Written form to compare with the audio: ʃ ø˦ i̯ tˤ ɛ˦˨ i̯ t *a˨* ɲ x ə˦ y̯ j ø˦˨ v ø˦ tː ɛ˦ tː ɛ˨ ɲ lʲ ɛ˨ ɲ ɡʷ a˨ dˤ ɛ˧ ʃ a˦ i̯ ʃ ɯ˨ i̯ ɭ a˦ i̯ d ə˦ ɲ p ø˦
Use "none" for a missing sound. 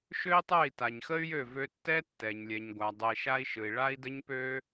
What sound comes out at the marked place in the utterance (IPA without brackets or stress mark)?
a˨